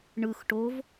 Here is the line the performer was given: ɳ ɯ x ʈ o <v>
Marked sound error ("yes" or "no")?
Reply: no